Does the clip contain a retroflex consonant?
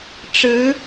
yes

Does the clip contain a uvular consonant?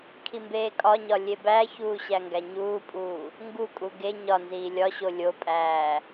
no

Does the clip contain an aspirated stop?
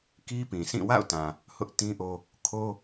yes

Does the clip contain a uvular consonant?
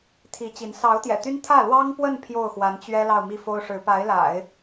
no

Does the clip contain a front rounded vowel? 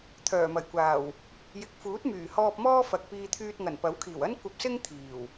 yes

